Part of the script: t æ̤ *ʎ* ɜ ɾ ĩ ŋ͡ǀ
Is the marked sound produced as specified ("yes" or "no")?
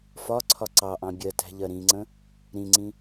yes